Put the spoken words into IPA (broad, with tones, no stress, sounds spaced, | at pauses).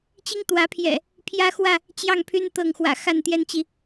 t͡ɕ i˦ ŋ t̪ w ä˨˦ pʰ j ɛ̰˨˩ | pʰ j ä˦ x w ä˥˨ | t͡ɕ j ɑ˥˨ ŋ pʰ y˦ n t̪ ɤ˥˨ ŋ x w ä̰˨˩ x a˥˨ n t̪ j ɛ˦ n t͡ɕ i˨